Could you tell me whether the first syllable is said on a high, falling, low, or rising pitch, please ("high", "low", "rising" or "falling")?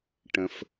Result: low